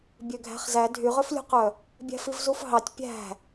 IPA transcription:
bʲ ø ɡʱ æ̤ χ z æ dʱ y ʁ ø f lʲ ṳ q œ | bʲ æ̤ f i v z u f ɦ ɑ tʲ pʲ æ̤

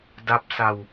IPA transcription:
d a˦˥ p̚ s a˧ w

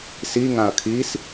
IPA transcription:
s i ŋ ã ɐ̯ kʰ i s

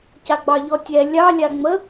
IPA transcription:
c a ɡ͡b ɑ ʎ ɔ tʲ ɛ lʲ ɑ lʲ a ŋ͡m ə

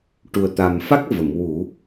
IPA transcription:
ʈ u˨˩ ə̯ t̪ a˨˩ m f a˦˥ k̚ v ə˨˩˨ m w u˨˩˦

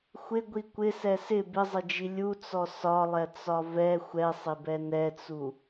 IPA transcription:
xʷ ɪ ɡʷ i kʷ ɪ s ɛ s ɪ b ɪ zˤ ɪ d͡ʒ i lʲ u t͡s ɔ s ɒ lˠ ɛ t͡s ɒ v ɛ xʷ ɛ sˤ ɪ b ɛ n ɛ t͡s u

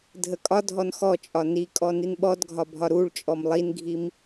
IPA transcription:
dʱ ə kʼ ɒ dʱ ɔ n x ɔ t͡ʃʼ ɒ n i kʼ ɔ n i n ɓ ɔ d ɡʱ ɒ bʱ ɒ ɾ u ɭ t͡ʃʼ ɔ m lˠ i n ɡʱ i m

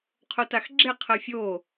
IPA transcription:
qʰ o t a x ɡ͡ǁ e qʰ ɜ fʲ o

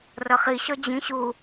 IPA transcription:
r ʌ χ i ɕ ɔ d͡ʑ ĩ ɕ u

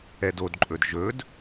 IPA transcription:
ɛ d o d ǃʼ ɵ d ʒ ɵ d

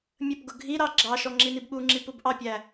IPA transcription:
mʲ ə p ɡ ʊ ɡʱ i ɾ ɑ ɡ͡ǁ ɑ ʃ ɔ ŋ͡ǁ i n i b ɓ u ŋ͡ǁ i p u b ʔ ɑ pʲ æ

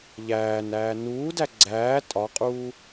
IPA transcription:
ʎ æː n æː n uː d æ ɡ͡ǀ æː tʼ ɒ qʼ uː

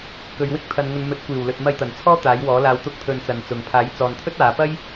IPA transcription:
k ɵ˨˧ ɥ w ɪ˥ k̚ t̪ʰ ɐ˨ n ŋ ɵ˨˧ n m ɵ˨˥ t̚ kʷ iː˨˩ w l ɵ˨ t̚ m ɐ˧ j t̪ ɐ˨˩ n t͡sʰ ɔː˥ t̪ aː˨˥ j w ɔː˨˥ l aː˧ w t̪ ʊ˥ k̚ t̪ʰ ɵ˧ n t͡s ɐ˨˧ n t͡s ʊ˨ ŋ pʰ aː˨˥ j t͡s ɔː˨ n t̪ʰ ɵ˥ t̚ aː˨˧ p ɐ˥ j

